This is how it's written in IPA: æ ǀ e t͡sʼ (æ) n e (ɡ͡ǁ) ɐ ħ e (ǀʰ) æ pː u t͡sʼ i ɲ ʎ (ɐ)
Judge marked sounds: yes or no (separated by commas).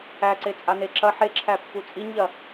no, no, no, yes